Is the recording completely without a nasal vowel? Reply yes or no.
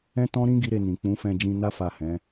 no